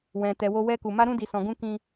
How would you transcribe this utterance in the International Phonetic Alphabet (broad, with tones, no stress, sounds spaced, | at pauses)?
w ɛ̃˨ t ɛ˨ w o˧ w ɛ˧ k u˨ m a˧ ɾ ũ˧ d i˨ s ɔ̃˨ ɡ ũ˧ k ĩ˧